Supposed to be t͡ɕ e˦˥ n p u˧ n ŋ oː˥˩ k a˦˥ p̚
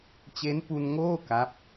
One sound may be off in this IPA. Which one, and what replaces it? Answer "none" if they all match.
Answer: none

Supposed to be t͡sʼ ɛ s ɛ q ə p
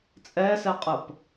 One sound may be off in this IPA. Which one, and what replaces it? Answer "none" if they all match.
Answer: q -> qʼ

